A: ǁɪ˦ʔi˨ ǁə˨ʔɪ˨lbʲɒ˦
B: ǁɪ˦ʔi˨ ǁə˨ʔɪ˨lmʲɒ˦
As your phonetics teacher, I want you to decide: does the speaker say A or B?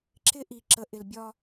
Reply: A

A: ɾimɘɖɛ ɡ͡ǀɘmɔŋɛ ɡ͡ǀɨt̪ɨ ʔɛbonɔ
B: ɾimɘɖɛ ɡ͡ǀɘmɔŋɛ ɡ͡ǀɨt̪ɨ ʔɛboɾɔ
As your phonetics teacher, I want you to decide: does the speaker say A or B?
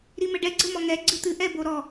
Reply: B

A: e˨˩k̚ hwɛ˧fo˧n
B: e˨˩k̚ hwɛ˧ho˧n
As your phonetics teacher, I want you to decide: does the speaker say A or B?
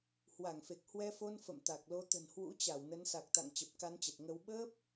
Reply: A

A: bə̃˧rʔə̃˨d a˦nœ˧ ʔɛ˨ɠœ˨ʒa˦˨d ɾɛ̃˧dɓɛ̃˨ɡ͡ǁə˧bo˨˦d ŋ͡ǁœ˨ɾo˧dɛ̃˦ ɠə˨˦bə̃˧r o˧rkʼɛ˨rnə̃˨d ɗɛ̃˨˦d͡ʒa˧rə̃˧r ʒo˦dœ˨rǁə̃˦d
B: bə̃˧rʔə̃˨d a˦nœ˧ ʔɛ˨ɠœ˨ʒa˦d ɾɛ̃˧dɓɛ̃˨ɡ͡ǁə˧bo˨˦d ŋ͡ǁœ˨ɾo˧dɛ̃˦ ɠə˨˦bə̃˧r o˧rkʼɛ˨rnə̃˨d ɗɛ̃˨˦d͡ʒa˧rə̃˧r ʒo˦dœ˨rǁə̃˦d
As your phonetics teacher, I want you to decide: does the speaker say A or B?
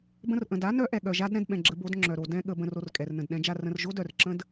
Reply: B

